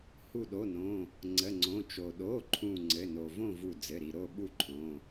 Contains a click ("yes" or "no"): yes